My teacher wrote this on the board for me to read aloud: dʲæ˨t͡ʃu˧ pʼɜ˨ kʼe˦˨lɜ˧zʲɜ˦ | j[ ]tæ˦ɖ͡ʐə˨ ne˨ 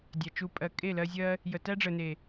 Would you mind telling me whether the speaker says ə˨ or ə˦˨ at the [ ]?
ə˨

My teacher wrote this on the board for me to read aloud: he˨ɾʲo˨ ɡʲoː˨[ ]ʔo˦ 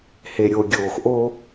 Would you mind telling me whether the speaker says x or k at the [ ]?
x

